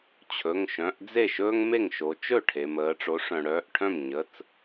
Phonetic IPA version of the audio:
t͡ɕʰ ɵ˩˧˩ ŋ ʃ œ̃˩˧˩ ʔ d͡z e˥˩ ʃ ɵː˥ ŋ m e˥˩ ŋ ʃ o˩˧ t͡ʃ ɵ˥˩ ʈʰ e˩ m əː˩˧ ʈ͡ʂ o˩˥ ʂ œ̃˩ ɽ œː˩˧˩ ʔ ʈʰ œ̃˥˩ m ɲ ə˩˧˩ t͡s

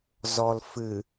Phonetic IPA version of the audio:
z ɔ l f ɨ

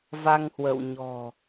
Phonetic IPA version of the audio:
v a˧ ŋ h w ə̰˧˨ w ɲ ɔ̤˨˩

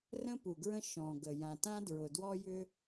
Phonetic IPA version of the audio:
r ə̃˥ p u˩ ɡ ɹ ə̃˥ ʃ ɔ̃˩ ɡ ə˩ j ã˩ t ã˥ d ɹ ʊ˩ d w ɔ˥ j ʏ˥

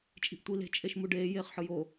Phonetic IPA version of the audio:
t͡ʃʼ i̤ ʔ tʷ i l e̤ t͡ʃʼ e ʃ m u ɖ eː j eː χ ħ ɯ j o

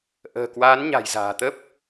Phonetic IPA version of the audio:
ʔ ə̤ː˨˩ k w aː˨˦ n ɲ a̤˨˩ j z a̤ː˨˩ t̪ ə˦˥ p̚

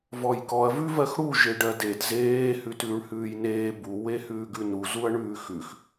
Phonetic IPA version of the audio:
v ɔ j k ɔ ɐ̯ v ʉ v ɜ x ɽ u ʒ e ɖ ɜ d e d z eː h ʉ t ʉː ɳ h ʉː j n eː b u w e h ʉː ɡ ʉ n u z u ɐ̯ ɳ ʉː x ʉ x

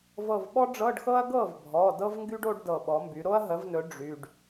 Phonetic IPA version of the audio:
v ɤ˧˩ v ɓ ɔ˥ ɖ͡ʐ ɤ˧˥˧ ɖ x ɤ˥ ɐ̯ ɡ ɤ˥˩ v bʱ ɔ˩˧˩ d ɤ˥ v ŋ ɡ y˥ ɖ o˥ ɖ d ɤ˧˩ ɓ ɔ˩˥ m b y˩˥ ɾ o˥ ɐ̯ ɦ ə˩˥ v n ɵ˩˥ ɖ͡ʐ y˩˧˩ ɖ

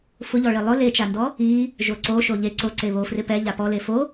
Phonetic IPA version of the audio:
f ʊ ʎ ɔ ɭ i lˠ ʊ l e t͡ʃ a n d ɔ | i | ʒ o ǀ o ʃ o ʎ e ǀ o ǀ e β o f r ɪ p ɛ ʎ a p ɔ l e f o

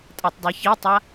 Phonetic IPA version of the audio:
tʼ a tˤ dˤ e ç i tˤ a

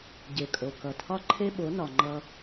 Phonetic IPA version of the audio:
ɟ e˨ kʼ o˨ k ʌ˨ tʰ ɒ˦ ǃʰ e˦ ɓ o˨˦ n ɒ˨ ŋ͡ǃ ʌ˦

